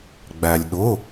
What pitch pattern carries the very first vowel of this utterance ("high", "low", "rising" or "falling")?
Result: low